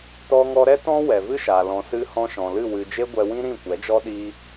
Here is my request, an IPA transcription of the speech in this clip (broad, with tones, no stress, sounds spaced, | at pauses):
t ɔ˧ ŋ ɔ˧ ɾ ɛ˦ t ɔ̃˦ w ɛ˨ v ɨ˦ ʃ aː˨ l ɔ̃˨ s ɨ˧ h ɔ̃˧ ʃ ɔ̃˨ l ɨ˦˨ w ɨ˧ d͡ʒ e˦ ɡʷ ɛ˧ w ĩ˦ ɾ ĩ˦˨ kʷ ɛ˨˦ d͡ʒ ɔ˦ ɗ iː˦